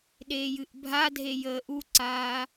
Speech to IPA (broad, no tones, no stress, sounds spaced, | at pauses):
ɗ eː j ɨ ʔ bʱ a dʱ e j əː ʔ u ǀ aː